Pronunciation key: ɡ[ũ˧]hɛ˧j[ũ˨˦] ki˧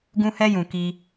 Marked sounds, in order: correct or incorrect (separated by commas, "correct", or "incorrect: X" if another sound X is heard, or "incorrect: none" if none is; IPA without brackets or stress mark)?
correct, incorrect: ũ˨